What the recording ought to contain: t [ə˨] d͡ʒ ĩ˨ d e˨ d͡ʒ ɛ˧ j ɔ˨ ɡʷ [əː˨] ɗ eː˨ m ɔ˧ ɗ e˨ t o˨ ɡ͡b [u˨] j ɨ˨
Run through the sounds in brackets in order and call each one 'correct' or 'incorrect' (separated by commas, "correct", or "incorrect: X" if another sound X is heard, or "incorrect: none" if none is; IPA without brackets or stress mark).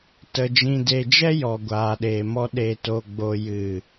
correct, incorrect: aː˨, incorrect: o˨